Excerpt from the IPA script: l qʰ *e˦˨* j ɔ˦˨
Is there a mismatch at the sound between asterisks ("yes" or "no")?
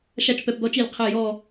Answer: no